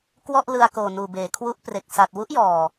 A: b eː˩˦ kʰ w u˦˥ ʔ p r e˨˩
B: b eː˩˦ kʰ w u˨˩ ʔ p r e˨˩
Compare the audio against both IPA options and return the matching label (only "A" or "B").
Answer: A